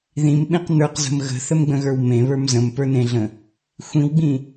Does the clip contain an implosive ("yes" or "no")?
yes